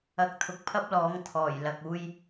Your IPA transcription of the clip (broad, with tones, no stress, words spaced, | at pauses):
ɐ˨˥k̚t̪ʰʊ˨k̚pʰɐ˥p̚lɔː˨˥ŋ t̪ʰɔː˨˩j lɐ˨k̚uː˧j